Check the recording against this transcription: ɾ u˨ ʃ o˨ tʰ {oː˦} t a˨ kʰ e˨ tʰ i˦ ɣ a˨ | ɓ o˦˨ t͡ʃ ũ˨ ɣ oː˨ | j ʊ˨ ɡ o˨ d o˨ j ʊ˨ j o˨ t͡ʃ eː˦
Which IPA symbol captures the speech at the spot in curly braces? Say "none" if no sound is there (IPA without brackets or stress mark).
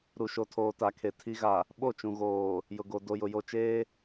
oː˨